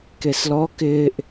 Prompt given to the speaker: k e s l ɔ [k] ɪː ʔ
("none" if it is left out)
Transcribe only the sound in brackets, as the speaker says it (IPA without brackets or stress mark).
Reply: k